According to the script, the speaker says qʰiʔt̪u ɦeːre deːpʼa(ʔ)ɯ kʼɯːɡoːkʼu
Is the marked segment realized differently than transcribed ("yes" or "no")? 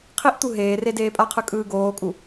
yes